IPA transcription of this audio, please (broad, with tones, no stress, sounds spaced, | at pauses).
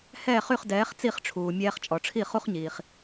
h ɛː˥˩ χ y˥˩ χ d ɛː˩˥ χ t͡s i˥˩ χ ʈ͡ʂʰ uː˩ mʲ ɛː˧ χ t͡ʃʼ ɔ˩ ʈ͡ʂʰ i˥˩ χ u˥ χ ɲ iː˩ χ